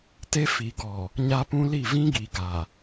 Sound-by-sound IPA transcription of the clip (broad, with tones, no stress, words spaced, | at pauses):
te˦fi˨ɡɔ˨ | ɲa˦pũ˦li˦˨ vĩ˦ɡi˨ ɡa˨